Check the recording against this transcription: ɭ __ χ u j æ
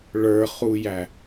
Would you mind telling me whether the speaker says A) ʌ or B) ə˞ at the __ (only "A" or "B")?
B